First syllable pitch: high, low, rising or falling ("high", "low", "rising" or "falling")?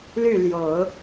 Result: falling